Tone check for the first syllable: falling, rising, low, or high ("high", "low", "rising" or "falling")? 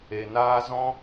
low